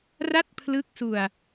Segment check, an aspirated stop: present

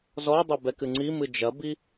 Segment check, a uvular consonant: absent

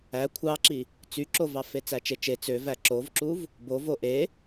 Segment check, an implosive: absent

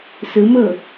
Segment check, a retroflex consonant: absent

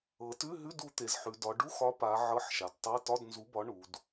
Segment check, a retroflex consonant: present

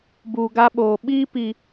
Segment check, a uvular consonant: absent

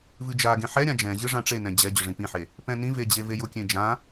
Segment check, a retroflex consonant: present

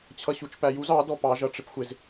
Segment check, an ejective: absent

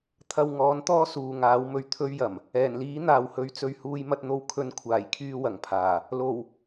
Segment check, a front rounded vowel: present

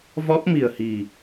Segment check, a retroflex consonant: absent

